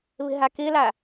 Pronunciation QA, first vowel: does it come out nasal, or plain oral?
oral